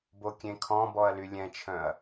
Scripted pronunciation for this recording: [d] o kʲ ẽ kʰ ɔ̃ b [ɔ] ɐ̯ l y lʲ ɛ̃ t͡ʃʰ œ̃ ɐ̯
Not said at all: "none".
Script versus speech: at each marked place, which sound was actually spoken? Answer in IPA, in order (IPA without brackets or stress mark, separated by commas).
b, ɔ